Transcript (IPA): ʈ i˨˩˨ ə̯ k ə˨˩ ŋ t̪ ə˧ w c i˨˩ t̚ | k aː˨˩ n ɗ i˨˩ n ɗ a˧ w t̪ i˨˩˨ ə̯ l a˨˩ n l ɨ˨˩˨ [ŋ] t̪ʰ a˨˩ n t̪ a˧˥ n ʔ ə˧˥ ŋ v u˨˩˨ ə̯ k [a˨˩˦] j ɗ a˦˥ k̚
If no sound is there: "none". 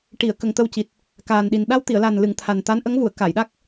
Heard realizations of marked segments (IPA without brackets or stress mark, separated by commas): ŋ, a˨˩˨